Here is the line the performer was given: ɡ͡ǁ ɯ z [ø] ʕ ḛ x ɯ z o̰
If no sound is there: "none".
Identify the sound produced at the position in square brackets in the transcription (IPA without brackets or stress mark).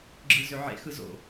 ø